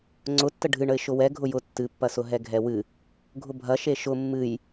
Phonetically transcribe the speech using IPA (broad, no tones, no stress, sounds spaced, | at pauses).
ŋ͡ǀ ʊ tː ə ɖʱ ɨ ɳ ə ɪ̯ ʃ ʊ w ɛ ɡʱ ʊ j ʊ tː ɨ pː ɐ s ʊ ɦ ɛ ɡʱ ɛ w ɨ | ɡʱ ʊ bʱ ɐ ʃ e ʃ ʊ mː ɨ j